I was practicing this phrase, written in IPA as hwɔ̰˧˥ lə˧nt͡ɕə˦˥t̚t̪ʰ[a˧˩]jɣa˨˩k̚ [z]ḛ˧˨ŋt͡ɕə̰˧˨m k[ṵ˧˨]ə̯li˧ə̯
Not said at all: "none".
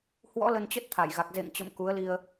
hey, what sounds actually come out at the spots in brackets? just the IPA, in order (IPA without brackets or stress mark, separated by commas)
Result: a˧˩, z, u˨˦